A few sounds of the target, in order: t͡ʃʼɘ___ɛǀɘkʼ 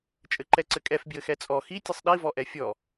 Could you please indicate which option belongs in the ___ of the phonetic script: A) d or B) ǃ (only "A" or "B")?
B